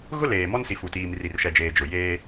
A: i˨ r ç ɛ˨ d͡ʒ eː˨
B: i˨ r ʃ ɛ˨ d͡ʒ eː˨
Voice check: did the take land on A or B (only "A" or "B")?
B